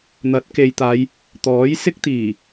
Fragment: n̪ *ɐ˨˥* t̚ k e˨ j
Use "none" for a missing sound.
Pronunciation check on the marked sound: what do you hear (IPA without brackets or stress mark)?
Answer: ɐ˨˥